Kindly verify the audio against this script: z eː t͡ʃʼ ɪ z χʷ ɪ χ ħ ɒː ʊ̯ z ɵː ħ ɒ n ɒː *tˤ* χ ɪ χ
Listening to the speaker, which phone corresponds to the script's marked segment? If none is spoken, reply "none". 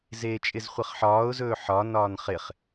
n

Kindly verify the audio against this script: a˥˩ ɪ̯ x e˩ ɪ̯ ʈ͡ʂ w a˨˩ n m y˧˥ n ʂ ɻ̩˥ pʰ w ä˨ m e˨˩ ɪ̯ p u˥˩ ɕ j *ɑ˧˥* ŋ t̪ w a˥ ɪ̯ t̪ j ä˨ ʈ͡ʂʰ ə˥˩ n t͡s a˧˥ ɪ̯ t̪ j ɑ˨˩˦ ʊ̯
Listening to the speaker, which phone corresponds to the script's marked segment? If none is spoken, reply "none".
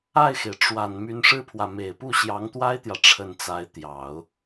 ɑ˧˥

